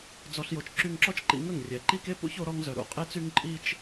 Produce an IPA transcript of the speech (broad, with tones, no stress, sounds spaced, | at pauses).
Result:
d͡z ɔ˧ ɬ j o˧ t͡ʃ ǁ y˧ ŋ ǁ ɔ˦ t͡ʃ ǃ ḭ˧ ŋ ə˦˨ ŋ rʲ ɛ˨ ǃ i˦ k e˦ p ṵ˦ ç o˧ ɾ ɔ˧ ŋ z œ˨ ɾ ṵ˦˨ qʼ e˦ t͡s y˦ ŋ ǃʼ i˦ t͡ʃ